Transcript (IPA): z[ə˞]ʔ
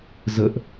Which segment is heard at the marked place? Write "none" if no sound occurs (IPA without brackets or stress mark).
ə